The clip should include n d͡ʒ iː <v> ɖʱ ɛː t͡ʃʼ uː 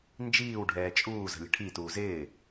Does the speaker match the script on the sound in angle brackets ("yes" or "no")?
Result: no